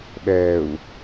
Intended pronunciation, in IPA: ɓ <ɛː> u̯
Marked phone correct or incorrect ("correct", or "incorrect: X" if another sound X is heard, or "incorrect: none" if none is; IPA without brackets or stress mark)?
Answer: correct